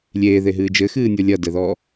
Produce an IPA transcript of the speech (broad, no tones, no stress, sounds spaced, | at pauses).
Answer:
lʲ eː ð e ɦ ɨː d͡ʒ ɘ x ɨː nʲ o lʲ ɐ d ɛ ð ɔ